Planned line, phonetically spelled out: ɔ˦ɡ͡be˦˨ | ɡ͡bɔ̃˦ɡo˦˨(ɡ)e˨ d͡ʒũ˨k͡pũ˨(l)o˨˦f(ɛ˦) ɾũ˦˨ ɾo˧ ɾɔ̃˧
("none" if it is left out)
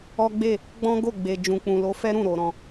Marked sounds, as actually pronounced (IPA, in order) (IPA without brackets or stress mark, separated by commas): ɡ͡b, l, ɛ˦